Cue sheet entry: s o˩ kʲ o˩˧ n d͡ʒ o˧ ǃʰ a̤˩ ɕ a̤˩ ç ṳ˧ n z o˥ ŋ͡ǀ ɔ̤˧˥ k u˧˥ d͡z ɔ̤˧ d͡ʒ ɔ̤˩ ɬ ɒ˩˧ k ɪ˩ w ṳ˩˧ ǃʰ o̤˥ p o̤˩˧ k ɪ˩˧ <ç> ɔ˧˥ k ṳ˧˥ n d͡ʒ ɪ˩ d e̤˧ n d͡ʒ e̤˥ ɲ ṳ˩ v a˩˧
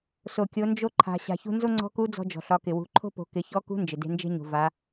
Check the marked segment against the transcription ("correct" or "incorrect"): correct